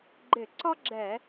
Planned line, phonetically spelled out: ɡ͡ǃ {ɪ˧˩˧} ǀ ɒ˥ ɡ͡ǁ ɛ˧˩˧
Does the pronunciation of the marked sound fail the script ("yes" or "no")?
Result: no